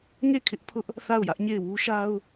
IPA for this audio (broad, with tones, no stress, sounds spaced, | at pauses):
ŋ e˦˨ kʰ ɪ˦ ʔ pʰ ʊ˦ ʔ | θ a˦˨ ʊ̯ j ä˦ ʔ ɲ e˦˨ ɪ̯ w u˦ ʃ a˦ ʊ̯